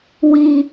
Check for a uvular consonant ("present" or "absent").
absent